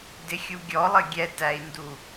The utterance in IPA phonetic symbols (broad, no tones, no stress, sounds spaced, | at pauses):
d ɪ xʲ u ɡʲ ɔ lˠ ə ɡʲ ɛ t æ i̯ n d u